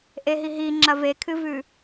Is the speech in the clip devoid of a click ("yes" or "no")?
no